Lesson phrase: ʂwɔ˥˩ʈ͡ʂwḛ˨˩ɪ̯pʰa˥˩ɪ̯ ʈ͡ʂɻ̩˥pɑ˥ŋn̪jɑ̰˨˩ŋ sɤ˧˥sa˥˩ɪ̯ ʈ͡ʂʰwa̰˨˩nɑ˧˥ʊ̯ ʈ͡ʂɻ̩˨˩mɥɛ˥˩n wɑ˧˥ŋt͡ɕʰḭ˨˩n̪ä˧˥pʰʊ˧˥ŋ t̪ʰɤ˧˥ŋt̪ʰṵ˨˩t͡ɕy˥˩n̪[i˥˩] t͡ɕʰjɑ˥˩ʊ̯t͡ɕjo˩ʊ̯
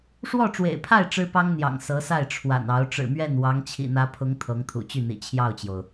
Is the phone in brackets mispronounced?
yes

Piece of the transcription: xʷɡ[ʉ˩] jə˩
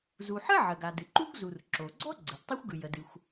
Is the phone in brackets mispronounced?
no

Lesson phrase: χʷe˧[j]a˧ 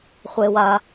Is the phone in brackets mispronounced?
yes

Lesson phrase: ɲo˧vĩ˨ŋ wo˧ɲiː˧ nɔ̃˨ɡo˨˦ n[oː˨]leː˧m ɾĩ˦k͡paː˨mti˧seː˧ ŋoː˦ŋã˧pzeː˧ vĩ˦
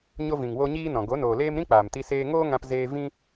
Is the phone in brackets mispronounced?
no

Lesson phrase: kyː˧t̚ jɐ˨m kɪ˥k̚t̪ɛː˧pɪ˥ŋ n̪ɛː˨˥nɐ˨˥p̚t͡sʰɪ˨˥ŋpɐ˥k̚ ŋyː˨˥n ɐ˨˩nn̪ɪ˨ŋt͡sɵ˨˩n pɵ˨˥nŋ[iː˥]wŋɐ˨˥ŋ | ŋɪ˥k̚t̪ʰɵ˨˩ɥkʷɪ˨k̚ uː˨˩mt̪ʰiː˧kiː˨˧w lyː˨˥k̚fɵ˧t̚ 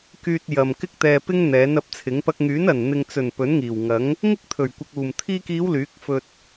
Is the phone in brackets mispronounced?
yes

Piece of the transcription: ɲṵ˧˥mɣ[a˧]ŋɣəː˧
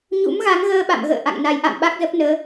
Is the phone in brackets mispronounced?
yes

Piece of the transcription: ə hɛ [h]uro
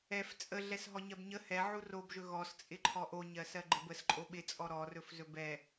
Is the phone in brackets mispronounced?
yes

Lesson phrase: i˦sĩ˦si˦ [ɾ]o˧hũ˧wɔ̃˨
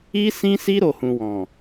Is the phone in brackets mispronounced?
no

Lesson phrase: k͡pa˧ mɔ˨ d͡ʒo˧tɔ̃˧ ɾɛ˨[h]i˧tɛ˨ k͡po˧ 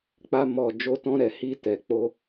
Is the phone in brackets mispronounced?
no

